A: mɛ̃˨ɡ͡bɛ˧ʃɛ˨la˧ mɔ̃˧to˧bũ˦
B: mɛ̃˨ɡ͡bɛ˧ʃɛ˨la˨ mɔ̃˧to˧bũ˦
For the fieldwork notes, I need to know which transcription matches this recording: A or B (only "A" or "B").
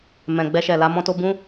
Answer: A